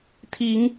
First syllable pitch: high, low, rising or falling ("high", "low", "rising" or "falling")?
rising